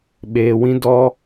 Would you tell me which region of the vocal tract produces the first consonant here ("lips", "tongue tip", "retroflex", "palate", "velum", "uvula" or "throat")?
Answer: lips